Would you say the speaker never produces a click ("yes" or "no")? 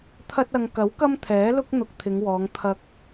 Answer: yes